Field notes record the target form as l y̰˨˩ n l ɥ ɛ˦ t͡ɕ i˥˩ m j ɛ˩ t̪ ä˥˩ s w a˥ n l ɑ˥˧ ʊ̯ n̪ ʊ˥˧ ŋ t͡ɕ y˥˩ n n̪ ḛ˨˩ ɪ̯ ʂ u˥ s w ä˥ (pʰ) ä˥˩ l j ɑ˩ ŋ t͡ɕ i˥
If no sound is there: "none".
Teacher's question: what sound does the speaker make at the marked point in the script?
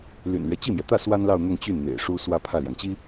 pʰ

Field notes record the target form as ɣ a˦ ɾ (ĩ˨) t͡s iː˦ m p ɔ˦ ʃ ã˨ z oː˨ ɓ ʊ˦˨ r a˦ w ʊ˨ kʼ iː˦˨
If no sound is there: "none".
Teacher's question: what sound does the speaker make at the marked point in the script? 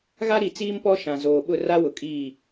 i˨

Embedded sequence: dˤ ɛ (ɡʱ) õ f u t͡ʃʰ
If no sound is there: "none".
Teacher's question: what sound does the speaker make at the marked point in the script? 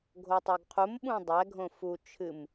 ɡʱ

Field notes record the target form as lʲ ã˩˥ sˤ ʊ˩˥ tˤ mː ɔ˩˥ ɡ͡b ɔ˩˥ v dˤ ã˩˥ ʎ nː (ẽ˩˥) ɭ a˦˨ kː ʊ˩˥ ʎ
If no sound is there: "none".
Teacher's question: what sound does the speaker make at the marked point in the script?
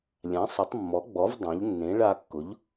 ẽ˩˥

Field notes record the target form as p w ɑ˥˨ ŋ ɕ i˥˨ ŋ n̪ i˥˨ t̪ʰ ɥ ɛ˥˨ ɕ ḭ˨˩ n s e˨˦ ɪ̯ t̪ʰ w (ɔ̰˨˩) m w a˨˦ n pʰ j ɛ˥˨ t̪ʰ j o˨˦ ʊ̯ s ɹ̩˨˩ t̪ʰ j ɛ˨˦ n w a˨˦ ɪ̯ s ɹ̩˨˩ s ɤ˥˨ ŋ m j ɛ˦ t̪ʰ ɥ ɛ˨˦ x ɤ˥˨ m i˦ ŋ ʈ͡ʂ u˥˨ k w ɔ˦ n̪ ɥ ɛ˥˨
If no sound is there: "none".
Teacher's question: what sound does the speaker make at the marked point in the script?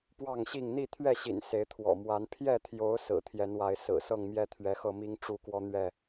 ɔ̰˨˩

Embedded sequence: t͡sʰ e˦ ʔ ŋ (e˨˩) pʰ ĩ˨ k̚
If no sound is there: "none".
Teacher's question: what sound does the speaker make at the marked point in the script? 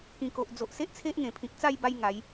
ẽ˨˩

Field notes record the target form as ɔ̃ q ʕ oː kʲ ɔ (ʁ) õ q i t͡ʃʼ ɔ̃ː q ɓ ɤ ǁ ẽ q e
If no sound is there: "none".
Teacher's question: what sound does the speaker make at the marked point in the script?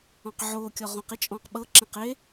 ʁ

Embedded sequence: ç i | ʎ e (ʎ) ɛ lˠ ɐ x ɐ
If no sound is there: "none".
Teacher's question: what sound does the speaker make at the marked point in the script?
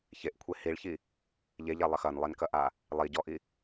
ʎ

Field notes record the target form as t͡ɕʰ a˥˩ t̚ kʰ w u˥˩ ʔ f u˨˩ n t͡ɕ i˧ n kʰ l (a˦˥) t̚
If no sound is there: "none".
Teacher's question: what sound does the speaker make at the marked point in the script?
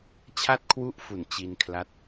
a˦˥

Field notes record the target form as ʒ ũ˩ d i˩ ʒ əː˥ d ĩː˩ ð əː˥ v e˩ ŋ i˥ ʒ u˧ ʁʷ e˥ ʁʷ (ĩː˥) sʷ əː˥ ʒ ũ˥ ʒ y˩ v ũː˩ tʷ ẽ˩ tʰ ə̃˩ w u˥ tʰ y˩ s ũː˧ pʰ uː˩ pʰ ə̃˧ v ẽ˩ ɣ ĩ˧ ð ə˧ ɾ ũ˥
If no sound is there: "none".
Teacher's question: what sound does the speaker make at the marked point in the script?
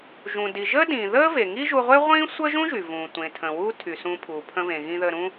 ĩː˥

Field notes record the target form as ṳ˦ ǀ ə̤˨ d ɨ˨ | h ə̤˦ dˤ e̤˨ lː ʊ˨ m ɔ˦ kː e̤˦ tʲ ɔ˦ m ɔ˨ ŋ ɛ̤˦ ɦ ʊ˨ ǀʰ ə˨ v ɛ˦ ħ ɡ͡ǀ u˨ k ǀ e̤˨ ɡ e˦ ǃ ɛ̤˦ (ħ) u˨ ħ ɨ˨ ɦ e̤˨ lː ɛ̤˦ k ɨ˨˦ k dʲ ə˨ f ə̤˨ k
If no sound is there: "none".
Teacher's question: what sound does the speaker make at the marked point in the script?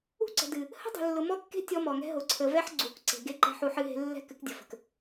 ħ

